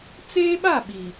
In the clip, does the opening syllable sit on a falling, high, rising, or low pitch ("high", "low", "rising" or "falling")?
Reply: high